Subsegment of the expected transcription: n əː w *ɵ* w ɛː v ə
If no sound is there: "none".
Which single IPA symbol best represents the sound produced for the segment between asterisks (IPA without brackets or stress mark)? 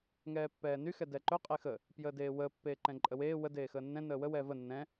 ə